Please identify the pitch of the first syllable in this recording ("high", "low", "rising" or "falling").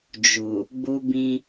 low